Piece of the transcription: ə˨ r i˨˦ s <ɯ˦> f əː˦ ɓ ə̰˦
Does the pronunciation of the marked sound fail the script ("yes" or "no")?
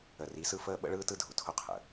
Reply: no